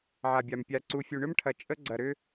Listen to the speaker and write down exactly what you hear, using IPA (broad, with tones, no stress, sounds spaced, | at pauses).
ʕ a˨ bʲ a˨ m pʲ a˨ ǀ u˨ fʲ u˨ ɳ ʏ˦ m ʈʰ ɐ˨ t͡ʃʼ ə˦ ɡ͡ǀ ɐ˨ ɾ ʏ˦